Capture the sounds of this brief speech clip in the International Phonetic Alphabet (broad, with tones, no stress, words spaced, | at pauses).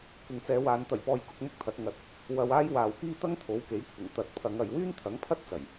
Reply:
kʷɪ˨ŋt͡sɛː˨˧waː˨˧n t̪ɐ˨˩jpɔː˨j kʊ˧k̚mʊ˥k̚t̪ʰɐ˨˥t̚ ŋɐ˧t̚ | wɐ˧waː˥j waː˨wkiː˥ t̪ɐ˥ŋt̪ʰo˨˥wke˨˥jkʷʰɪ˨˩ŋ t̪ɐ˨t̚ pʰɐ˨˧ŋ ɐ˨jwyː˥nt̪ʰɐ˨˥ŋpʰɐ˥t̚ t͡sɐ˨˩j